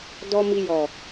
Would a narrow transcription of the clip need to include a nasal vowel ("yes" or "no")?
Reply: no